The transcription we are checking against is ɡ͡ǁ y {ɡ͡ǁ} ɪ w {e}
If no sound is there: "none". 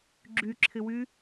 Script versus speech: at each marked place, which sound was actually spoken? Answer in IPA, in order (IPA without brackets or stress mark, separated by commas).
ǁʰ, y